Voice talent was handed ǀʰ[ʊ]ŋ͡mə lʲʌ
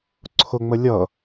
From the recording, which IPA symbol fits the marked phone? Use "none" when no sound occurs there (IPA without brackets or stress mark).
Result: ʊ